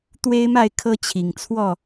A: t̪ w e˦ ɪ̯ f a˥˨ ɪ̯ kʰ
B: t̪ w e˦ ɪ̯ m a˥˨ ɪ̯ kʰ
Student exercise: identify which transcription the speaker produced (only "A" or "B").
B